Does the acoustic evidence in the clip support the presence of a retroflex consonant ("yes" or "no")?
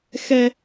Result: no